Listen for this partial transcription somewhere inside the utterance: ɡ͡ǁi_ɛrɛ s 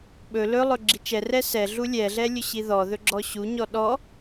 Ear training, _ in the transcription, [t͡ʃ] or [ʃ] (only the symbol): t͡ʃ